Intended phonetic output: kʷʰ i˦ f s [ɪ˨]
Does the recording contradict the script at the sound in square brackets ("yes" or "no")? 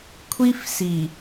yes